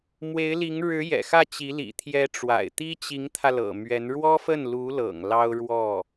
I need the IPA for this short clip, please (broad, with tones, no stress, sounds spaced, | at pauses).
m w e˧˥ ɪ̯ l i˧˥ ŋ ɻ ɻ̩˧˥ j ɛ̰˨˩ x ä˥˩ t͡ɕ i˧˥ l ḭ˨˩ t̪ʰ j ɛ˧˥ ʈ͡ʂ w a̰˨˩ ɪ̯ t̪ i˥ t͡ɕ i˧˥ ŋ t̪ʰ ä˧ l ɤ̰˨˩ m ɥ ɛ˧˥ n ɻ w ɔ˥ f ə˥˩ n l u˧˥ l ɤ̰˨˩ ŋ l ɑ˥ ʊ̯ ɻ w ɔ˥˩